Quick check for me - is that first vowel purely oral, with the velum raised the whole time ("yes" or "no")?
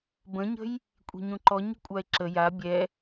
no